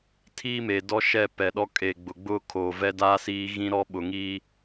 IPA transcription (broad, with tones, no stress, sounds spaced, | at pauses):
tʰ iː˦ m e˨ d ɔ˦ ʃ ɛ˦˨ p ɛ˨ ɗ ɔ˦ kʼ e˨ ɡ͡b ʊ˨ ɡ͡b ʊ˦ kʰ oː˨ v ɛ˦ d aː˦ s iː˦ ɣ ĩ˦ ɾ ɔ˦ ɓ ʊ˨ ŋ iː˦